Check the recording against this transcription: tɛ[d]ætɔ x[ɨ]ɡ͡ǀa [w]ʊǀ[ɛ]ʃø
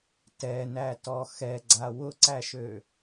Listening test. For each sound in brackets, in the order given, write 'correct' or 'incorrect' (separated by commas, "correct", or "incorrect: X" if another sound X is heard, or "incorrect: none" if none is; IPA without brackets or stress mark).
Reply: incorrect: n, incorrect: ɛ, correct, incorrect: æ